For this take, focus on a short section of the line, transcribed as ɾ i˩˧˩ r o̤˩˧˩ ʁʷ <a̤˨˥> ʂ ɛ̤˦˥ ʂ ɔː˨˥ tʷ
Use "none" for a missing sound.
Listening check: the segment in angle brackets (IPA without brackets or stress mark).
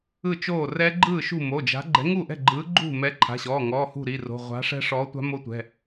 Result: a̤˨˥